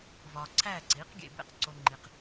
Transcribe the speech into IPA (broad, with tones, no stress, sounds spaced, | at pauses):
v ɒː˨ ǀʰ æː˦˨ ǀ iː˩˥ q ɡʲ ḛ˨ b ḛ˦˨ q ǀ o˨ ŋ͡ǃ i˨ q